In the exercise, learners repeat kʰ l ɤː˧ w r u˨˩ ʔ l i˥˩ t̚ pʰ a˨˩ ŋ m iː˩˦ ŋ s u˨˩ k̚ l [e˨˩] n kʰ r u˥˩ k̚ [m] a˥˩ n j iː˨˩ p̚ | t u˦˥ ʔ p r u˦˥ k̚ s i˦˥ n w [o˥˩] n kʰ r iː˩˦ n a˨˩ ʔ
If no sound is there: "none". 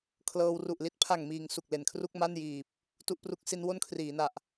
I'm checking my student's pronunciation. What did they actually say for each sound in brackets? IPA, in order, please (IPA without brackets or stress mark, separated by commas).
e˨˩, m, o˥˩